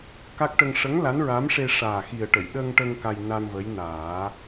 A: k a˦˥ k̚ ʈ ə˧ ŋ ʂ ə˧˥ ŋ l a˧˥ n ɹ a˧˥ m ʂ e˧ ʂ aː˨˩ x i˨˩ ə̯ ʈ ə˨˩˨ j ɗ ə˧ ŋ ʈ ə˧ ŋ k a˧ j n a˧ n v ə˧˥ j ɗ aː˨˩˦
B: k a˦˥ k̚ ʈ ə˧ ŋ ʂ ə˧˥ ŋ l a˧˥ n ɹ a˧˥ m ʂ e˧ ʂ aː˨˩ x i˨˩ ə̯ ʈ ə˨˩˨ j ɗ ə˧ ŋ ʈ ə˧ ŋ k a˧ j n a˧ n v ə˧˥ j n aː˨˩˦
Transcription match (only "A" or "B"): B